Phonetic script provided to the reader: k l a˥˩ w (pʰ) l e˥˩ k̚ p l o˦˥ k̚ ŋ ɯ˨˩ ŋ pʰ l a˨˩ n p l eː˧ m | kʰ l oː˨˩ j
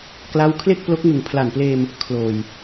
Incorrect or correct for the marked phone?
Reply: incorrect: kʰ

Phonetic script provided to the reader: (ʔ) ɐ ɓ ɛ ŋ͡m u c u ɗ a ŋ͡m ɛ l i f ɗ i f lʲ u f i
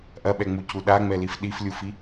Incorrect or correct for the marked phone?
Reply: correct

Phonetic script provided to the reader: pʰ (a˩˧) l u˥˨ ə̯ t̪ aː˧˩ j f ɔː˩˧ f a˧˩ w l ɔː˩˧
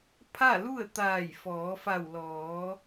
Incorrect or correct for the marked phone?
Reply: incorrect: a˥˨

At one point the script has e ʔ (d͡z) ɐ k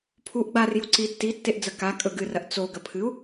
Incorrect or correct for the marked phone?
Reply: correct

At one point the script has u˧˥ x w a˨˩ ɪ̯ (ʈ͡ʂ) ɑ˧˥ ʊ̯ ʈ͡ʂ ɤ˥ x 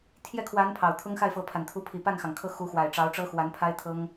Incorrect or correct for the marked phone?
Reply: correct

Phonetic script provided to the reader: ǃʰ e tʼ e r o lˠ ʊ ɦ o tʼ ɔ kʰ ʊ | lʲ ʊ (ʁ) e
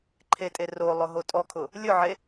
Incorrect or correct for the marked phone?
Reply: incorrect: ʕ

